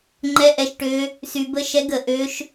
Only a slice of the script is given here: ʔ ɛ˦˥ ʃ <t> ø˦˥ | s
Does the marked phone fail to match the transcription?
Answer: yes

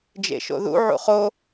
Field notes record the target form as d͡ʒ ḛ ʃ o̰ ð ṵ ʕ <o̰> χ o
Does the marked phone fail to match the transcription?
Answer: yes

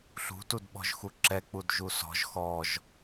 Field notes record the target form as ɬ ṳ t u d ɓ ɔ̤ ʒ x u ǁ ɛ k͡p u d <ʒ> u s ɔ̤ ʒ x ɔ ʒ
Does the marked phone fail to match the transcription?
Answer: no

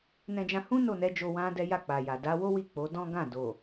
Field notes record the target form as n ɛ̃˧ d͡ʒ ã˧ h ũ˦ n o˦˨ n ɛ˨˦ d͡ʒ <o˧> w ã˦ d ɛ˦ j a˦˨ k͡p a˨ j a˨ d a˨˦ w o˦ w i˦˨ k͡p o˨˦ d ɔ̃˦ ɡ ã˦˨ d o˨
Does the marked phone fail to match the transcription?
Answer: no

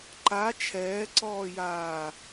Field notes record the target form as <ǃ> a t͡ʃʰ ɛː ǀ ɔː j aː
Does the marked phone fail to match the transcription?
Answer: no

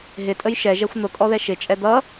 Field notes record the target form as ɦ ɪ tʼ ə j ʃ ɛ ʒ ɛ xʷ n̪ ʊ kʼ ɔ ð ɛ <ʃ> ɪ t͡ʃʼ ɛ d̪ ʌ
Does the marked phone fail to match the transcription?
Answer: no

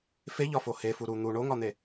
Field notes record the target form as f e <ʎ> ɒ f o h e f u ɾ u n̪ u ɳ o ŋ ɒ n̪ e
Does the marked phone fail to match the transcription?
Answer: no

